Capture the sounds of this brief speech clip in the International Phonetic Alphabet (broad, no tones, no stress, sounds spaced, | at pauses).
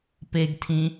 p e ɡ tʰ ĩ